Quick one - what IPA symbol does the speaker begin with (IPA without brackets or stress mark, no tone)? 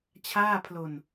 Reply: t͡ɕʰ